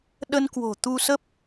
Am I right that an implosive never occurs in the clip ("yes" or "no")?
no